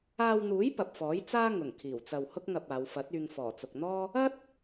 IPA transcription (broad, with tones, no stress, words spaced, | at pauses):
aː˧wn̪uː˨˥j pɐ˨p̚fɔː˨˥jt͡saː˥ ŋʊ˨˩ŋkʰiː˨˩wt͡sɐ˨w hʊ˥k̚ŋɐ˧p̚aː˨˧w fɐ˨˥t̚yː˧ŋ fɔː˨˩t͡sʊ˨k̚n̪ɔː˥ | ɐ˥t̚